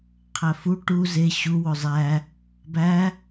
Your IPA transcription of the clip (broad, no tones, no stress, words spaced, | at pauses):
qʰæfu ʈu ze ɕu wozˤæ | bæ